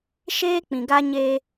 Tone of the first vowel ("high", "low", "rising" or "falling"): high